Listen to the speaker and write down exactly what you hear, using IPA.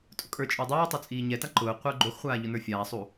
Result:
tʼ ʊ kʼ ə˞ t͡ʃʼ ʊː dˤ ɛː tˤ o t͡sʼ iː ɲ ɛ t a ǃ ʊː qʷ ə˞ ɡ͡ǃ o x χʷ aː ʎ ʊ n ə˞ fʲ aː sˤ u

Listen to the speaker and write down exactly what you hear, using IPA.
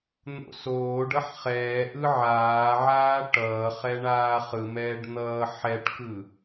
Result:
n̪ o̰ s oː ɖ ʌ ħ χ ɛː ʔ ɯ ʕ aː ʕ aː ʈ ʌː χ ɛ ɳ aː χ ɯ m ɛː ɖ n̪ ʌː ħ ɛ ʈ k ɯ

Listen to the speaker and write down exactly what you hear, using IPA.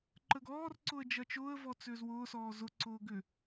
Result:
ǃ ə ɡ ɔː r ǀ ʊ ə̯ d͡ʒ ɐ t͡ʃ ʊː ə̯ v ɔ t͡s ʏː z w ʊː s ɔː z ʊ ǀ ʊː ɡ ʏ

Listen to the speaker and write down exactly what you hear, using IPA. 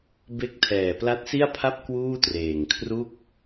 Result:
b e˦˥ k̚ tʰ ɛː˨˩ p l a˦˥ t̚ s i˥˩ a̯ pʰ a˥˩ p̚ k w uː˥˩ t r eː˨˩ ŋ kʰ r u˥˩ k̚

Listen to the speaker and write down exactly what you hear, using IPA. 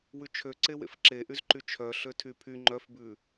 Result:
w ʉ t͡ʃʰ ø ǀ e w ḛ f ǁ e ʔ y z ǃ y t͡ʃʰ œ ɬ ø tʰ y pʰ y ŋ͡ǃ œ f b ʉ

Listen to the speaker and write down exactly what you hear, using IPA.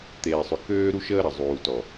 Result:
t̪ eː˨ sˤ ʏ˨ k øː˦ ɾ u˦ ʃ əː˦ ɾ ɐ˨ zˤ uː˨ t ɔ˨

